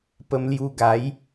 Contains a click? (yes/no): no